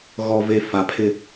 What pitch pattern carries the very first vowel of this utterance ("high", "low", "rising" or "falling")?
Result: low